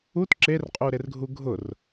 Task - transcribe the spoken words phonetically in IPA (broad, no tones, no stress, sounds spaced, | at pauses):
u t ǁ e r qʼ u ɾ e r ɡʱ u ɡʱ ʊ r